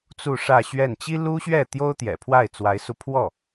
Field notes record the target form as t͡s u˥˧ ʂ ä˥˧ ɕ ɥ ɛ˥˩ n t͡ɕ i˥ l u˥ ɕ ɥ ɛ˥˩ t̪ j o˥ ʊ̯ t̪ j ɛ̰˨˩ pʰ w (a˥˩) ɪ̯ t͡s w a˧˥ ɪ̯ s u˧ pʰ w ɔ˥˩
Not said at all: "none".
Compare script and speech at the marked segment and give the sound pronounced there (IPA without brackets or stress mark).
a˥˩